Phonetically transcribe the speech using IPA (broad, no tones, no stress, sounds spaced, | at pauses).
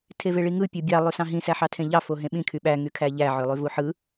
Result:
tʰ e v e ɭ i ŋ ɯ pʲ o bʲ ɑ lˠ y s ɑ̃ ɦ ĩ s æ ħ ɑ tʰ ẽ ʎ ɑ f o ɦ ẽ ɓ ĩ kʰ y ɓ æ ŋ y kʰ æ ʎ æ ʕ ø lˠ y v u ħ ɯ